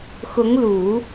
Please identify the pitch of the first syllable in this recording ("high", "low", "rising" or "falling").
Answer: rising